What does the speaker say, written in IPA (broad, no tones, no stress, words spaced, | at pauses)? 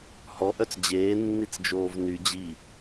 hɔʔœt͡s d͡ʑeːnːit͡s d͡ʒoːvny d͡ʑi